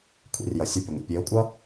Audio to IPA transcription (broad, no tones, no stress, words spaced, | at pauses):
kʷʰḭrjʌ sʲʌpʲoŋʷḭ pʲeʊ̯kʷʼʌ